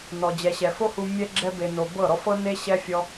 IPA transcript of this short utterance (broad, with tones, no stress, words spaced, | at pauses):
nɔ˨d͡ʑɛ˨ɕɛ˨ fo˦hu˧ mʲɛ˧ ɡ͡ǁɛ˧be˨no˨ bɤ˦˨ɾɔ˦f ɤ˦ne˦ɕɛ˦fʲɔ˦